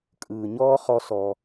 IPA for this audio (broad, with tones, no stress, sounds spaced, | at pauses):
kʼ ɯː˩ ɲ ɔː˥ χ ɔ˧ s ɔ˩